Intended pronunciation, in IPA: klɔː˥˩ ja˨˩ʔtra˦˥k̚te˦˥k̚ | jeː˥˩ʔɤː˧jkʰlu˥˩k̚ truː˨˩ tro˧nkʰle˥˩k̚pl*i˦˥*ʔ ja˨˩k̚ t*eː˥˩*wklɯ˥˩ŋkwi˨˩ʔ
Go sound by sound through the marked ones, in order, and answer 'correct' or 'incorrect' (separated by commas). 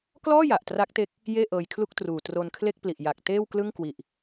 incorrect, correct